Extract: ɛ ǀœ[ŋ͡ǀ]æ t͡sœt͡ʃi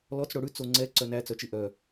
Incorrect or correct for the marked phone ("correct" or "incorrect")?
incorrect